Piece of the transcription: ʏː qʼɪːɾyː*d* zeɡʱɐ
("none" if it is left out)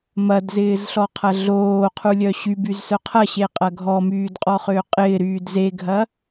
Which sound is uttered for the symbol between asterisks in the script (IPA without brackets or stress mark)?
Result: d